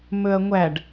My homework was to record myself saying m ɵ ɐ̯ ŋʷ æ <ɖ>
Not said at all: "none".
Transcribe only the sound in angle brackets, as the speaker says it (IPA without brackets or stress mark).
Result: ɖ